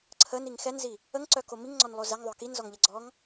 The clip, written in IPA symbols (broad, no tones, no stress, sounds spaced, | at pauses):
ǀʰ ə n i ŋ x ɛ n z i | ə ŋ ǀ œ k o m i ŋ ŋ͡ǀ ɔ n lˠ o z ɛ ŋ ðˤ œ k i n z ɔ ŋ ʎ ɛ ɡ͡ǀ ɔ ŋ